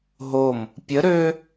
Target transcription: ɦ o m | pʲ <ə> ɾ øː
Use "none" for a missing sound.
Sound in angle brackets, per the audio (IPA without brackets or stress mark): ə